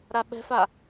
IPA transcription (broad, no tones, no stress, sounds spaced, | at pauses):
ɾ a ɓ ɛ̤ f a